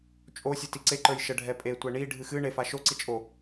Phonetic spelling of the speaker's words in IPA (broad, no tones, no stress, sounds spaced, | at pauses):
t͡ʃʼ o sʲ ɯ t i ǀ e ǃ ə˞ j ʃ ə ɖʱ ɛ pʼ e tʷ ɛ ɳ i ɖʱ ɨ x ɨ ɳ e f a ʃ o ǀ i t͡ʃʼ o